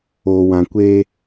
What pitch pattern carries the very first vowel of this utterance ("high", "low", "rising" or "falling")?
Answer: low